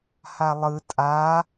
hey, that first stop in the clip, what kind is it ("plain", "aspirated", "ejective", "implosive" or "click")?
ejective